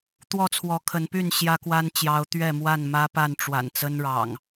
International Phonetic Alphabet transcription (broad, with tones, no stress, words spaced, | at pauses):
t̪wɔ˥˨t͡sʰwɔ˨˦kʰə˨˦npy˥˨n ɕjä˦kwa˦nt͡ɕjɑ˨˦ʊ̯ t̪ɥɛ˥˨mwa˥˨n mä˦pa˥˨n ʈ͡ʂwa̰˨˩n t͡sə˦nɻɑ̰˨˩ŋ